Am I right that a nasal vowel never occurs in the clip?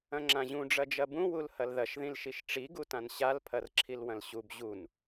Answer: no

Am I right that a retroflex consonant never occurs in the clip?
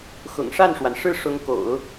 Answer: no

